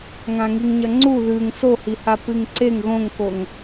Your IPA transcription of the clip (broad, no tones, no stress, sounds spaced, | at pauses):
ŋ ã ŋ i ŋ ɲ ɐ ŋ͡ǀ u ð ʉ ŋ s o h i h a p ɨ ŋ ǀ e ŋ ɣ õ ŋ k o ŋ